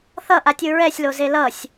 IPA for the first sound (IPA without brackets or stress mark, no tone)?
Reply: θ